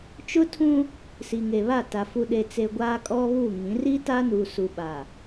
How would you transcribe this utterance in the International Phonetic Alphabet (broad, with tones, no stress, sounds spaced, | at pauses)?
t͡ʃ ʊ˦ tʰ ũ˦ | s i˨ ŋ e˨ β a˦˨ t a˨ f u˨ ɗ e˨ t͡s e˨ ɡʷ aː˦ kʼ ɔ˦ β u˦˨ ŋ ĩ˨˦ r i˦ t a˦ n u˨ s u˨ ɓ a˨